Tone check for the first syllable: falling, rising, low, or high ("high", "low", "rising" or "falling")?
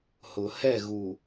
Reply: low